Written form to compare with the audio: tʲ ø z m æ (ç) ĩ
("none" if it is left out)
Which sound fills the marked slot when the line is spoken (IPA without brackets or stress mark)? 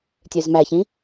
ç